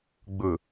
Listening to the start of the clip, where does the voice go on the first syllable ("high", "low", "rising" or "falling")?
low